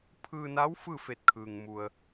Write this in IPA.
pʰ ɯː˧ n a˧˥ w f ɯː˥˨ f e˧˩ t̚ kʰ ɯː˩ ŋ m u˩ ə̯

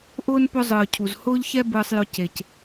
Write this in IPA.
ʔ ʊː˦ n p ʊ˦ zˤ ɯː˨ cʰ u˨ z h ʊː˦ ʎ ç ɛ˦ b ɯː˧ sˤ j ʊ˧ c e˨ c

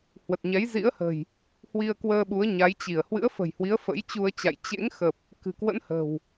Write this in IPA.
h w ə˨˩ t̚ ɲ ɛ˨˦ j z ḭ˧˥ ə̯ h ə̤˨˩ j | h w i˧ ə̯ k w əː˧ ɓ u˨˦ ə̯ ɲ a˨˦ j t͡ɕ i˧˩ ə̯ h w ɨ̰˧˥ ə̯ f ə̤˨˩ j h w i˨˦ ə̯ f ə̰˧˥ j t͡ɕ u˧ ə̯ t͡ɕ a̰˧˨ j t͡ɕ ḛ˧˥ ŋ x ə˨˩ p̚ | k ɨ̤˨˩ k w ə̰˧˥ n h ə̤˨˩ w

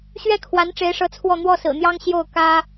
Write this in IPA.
ɕ ɥ ɛ˥˩ kʰ w a˧˥ n ʈ͡ʂ e˧˥ ɪ̯ ʂ ɤ˧˥ t͡sʰ w ɔ˥˧ n̪ w ɔ˥˩ s ɹ̩˨˩ n̪ j ɑ˥ ŋ ɕ j o˥˩ ʊ̯ k ä˥

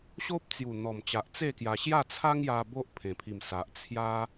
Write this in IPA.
ɕ o˦ p̚ t͡s j u˨˩ n̪ ɔ˨˩ m t͡ɕ a˨ ʔ t͡s e˥˧ k j a˧ ɕ j a˥˧ t͡sʰ a˦ ŋ j a˧ b o˦ ʔ pʰ ẽ˨˩ pʰ i˨˩ m s a˨ ʔ t͡sʰ j a˦

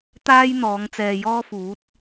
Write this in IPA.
t̪ aː˥ j n̪ ɔː˨˧ ŋ t͡s ɛː˨ j ɔː˥ f uː˨˥ t̚

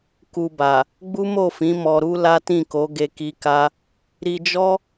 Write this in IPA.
k u˧ b a˨ | ɡ͡b u˦ m o˦˨ f ĩ˨˦ m ɔ˧ ɾ u˦ l a˦ t ĩ˦˨ k o˨˦ ɡ e˦ k i˦ k a˦ | ɾ i˧ d͡ʒ ɔ˦

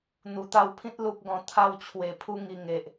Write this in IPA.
n̪ u˨˩ t̪ a˧ w pʰ ĩ˦ t̚ l u˦ p̚ ɡ ɔ̃˧ t̪ʰ a˧ w t͡ɕʰ w e˨˩ pʰ u˧ ŋ i˨˩ ŋ e˨ ʔ

